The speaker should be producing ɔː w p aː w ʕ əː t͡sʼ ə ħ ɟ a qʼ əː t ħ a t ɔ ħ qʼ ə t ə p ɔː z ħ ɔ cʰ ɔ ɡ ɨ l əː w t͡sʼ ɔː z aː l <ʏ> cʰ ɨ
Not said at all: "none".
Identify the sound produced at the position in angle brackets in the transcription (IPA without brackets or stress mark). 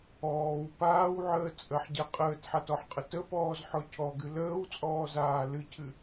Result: ɨ